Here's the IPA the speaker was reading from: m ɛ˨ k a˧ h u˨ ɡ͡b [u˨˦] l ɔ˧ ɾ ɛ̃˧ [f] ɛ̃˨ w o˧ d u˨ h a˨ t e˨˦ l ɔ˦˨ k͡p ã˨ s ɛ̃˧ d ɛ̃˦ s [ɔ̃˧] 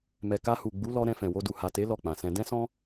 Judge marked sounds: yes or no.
yes, yes, no

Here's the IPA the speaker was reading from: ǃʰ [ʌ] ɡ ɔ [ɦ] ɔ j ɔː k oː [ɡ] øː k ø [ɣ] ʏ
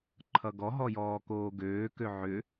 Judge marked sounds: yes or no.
yes, yes, yes, no

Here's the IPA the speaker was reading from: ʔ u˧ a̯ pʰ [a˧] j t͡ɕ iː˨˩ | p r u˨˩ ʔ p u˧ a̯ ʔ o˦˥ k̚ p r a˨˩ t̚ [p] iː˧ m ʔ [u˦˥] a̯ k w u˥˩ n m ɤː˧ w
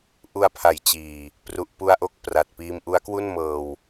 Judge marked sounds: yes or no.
no, yes, yes

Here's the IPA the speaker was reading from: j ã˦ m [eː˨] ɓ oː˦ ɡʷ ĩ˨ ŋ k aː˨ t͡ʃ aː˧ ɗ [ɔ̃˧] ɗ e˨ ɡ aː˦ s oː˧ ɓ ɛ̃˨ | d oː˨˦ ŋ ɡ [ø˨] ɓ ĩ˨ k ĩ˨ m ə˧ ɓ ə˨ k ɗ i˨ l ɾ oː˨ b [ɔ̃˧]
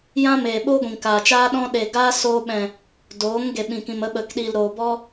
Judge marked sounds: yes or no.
yes, yes, no, no

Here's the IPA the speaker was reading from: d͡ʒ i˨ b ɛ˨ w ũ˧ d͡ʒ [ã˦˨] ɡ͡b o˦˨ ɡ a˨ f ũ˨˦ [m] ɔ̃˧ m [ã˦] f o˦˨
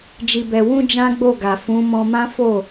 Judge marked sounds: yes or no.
no, yes, yes

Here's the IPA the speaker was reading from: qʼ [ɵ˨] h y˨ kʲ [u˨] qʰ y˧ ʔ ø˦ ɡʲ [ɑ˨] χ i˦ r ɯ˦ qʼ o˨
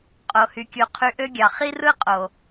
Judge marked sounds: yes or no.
no, yes, yes

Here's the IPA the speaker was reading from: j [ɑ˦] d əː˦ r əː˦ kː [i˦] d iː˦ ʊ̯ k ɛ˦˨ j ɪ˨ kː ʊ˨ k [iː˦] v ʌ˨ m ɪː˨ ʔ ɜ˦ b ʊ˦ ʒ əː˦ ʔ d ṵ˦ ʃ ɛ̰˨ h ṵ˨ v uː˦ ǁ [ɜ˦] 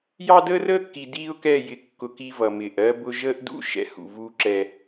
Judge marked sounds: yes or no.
yes, no, no, no

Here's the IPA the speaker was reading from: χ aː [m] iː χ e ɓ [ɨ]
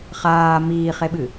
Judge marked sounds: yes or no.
yes, yes

